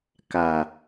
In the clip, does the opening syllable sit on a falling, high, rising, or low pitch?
low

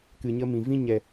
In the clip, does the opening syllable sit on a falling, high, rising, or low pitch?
low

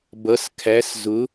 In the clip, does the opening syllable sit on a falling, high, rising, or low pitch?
rising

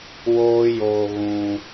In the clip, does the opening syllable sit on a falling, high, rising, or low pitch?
high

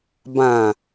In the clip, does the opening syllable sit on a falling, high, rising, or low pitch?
low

